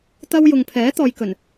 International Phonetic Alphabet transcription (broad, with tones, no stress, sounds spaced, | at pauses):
t̪ ɐ˧ w j ʊ˨ ŋ pʰ ɛː˨˥ t̪ ɔː˨ j k ɵ˨˩ n